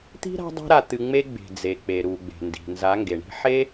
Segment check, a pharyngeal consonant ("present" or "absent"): present